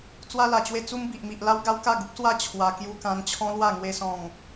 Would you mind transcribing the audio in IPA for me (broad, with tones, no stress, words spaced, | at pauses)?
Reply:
t͡swa˧la˨˩t͡ɕwe˧ t͡su˧mbi˨ʔmi˨ʔ la˦wɡa˦wka˥˧ɡu˦p̚ swa˥˧t͡ɕʰwa˧ kju˧kã˧n t͡ɕʰɔ̃˦lwa˥˧ ŋwe˦sɔ̃˥˧ŋ